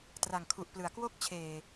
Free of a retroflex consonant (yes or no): yes